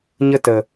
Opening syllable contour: high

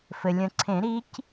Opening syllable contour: low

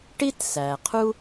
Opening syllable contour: high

